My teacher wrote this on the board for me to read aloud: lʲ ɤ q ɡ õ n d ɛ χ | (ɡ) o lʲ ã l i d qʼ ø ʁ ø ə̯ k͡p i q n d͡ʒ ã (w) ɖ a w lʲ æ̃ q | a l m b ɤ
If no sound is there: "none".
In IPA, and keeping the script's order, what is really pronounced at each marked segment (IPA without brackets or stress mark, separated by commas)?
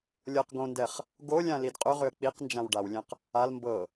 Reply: ɡ, w